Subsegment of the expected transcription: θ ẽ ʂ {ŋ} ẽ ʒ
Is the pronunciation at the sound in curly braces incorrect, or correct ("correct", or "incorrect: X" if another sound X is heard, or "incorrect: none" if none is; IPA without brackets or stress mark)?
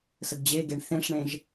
incorrect: ɳ